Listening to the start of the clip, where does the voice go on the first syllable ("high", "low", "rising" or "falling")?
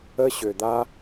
high